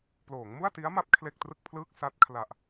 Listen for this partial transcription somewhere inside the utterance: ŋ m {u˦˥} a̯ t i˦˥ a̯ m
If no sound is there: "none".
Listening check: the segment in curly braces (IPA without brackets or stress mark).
u˥˩